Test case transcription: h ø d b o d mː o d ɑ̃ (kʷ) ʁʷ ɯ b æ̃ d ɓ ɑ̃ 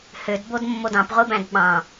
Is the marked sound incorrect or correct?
incorrect